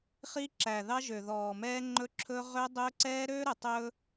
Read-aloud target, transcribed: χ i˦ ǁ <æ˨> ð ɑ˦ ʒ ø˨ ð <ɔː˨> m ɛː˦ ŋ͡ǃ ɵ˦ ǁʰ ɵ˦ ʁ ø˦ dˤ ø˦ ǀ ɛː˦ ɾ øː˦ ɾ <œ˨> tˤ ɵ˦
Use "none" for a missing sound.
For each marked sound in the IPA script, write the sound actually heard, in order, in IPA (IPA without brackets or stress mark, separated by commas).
æ˨, ɔː˨, ɵ˨